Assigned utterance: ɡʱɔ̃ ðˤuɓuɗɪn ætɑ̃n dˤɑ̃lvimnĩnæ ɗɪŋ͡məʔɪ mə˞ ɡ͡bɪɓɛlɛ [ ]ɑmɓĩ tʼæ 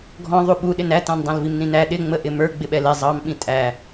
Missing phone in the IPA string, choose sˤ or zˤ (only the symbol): zˤ